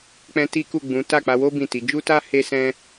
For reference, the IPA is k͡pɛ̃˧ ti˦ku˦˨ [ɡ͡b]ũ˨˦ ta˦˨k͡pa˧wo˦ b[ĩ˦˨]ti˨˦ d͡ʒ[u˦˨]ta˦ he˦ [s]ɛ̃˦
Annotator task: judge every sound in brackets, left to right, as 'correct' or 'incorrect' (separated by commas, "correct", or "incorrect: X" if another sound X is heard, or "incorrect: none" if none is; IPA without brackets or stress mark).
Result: correct, correct, incorrect: u˦, correct